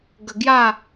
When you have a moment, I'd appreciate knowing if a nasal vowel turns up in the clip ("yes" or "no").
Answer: no